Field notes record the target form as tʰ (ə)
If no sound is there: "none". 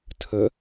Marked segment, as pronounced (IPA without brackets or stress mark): ə